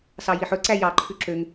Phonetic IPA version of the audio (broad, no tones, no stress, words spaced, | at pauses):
sɑjiħɵǀæ jɑǃʰʉ ǁøŋ